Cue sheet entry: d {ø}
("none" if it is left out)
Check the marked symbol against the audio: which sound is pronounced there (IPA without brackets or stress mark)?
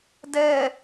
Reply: ɛ